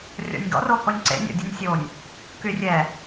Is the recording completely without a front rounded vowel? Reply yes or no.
no